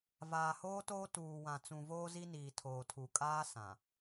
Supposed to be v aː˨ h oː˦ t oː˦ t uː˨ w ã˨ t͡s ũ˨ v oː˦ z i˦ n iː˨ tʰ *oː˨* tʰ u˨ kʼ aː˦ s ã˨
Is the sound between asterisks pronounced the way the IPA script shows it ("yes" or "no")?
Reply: yes